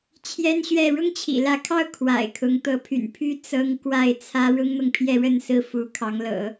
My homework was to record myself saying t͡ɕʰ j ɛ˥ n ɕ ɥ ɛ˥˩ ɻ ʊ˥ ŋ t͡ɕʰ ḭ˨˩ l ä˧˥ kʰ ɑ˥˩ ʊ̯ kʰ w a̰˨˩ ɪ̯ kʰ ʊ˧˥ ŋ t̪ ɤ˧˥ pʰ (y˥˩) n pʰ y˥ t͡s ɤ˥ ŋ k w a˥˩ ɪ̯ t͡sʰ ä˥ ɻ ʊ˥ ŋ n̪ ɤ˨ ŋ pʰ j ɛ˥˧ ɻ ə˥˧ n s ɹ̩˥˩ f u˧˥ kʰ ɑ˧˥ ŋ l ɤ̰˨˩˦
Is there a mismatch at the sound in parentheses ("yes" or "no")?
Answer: yes